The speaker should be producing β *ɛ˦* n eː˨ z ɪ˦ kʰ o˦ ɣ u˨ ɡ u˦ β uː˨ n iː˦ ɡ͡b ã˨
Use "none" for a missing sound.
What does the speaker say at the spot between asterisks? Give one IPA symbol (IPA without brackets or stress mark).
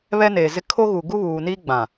ɛ˦